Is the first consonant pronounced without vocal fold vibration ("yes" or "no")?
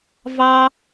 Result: no